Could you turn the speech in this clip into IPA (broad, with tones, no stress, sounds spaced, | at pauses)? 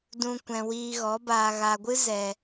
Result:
d ũ˧ kʷ ɛ̃˨ w iː˧ ɣ ɔ˨˦ b aː˨ ɣ a˨ ɡʷ ɨ˦ z ɛ˨